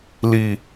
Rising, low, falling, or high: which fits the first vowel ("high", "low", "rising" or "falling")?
low